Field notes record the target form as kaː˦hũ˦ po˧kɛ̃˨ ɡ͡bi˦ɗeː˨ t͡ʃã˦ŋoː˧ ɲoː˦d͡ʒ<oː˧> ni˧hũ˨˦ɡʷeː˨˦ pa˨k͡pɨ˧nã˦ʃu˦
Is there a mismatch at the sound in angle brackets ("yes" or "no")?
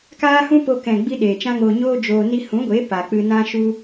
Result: no